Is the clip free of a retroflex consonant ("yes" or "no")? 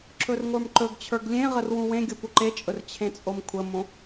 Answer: yes